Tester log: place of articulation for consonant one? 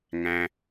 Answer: velar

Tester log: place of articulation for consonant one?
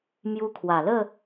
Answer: labial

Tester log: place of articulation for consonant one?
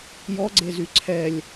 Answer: palatal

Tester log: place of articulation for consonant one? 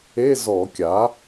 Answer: alveolar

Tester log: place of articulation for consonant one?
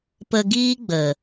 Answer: labial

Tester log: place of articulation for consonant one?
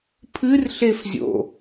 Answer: labial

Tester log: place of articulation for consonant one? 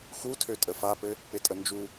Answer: velar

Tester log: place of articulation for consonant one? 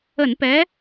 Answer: alveolar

